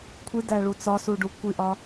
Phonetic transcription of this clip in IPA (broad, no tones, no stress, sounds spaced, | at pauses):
kʷʰ i d æ ɭ u t͡s ɒ s u ɖ u kʷ i ʔ ɒ